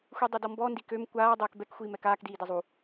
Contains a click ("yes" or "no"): no